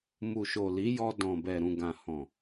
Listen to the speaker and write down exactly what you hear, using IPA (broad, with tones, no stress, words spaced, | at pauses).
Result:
mu˨ʃo˨li˨˦jɔ˧ dɔ̃˨bɛ˨ ɾũ˨ɡã˨hɔ̃˨